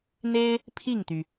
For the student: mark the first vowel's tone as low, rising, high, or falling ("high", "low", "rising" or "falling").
high